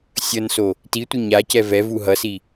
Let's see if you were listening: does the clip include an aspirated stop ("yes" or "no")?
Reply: no